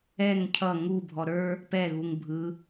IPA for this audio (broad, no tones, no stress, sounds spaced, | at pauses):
ɛ ŋ cʰ ʌ ŋ u bʱ ɔ ɾ ə˞ | p ɛ ɣ u ŋ bʱ ɯ